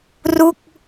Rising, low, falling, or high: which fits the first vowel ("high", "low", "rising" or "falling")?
falling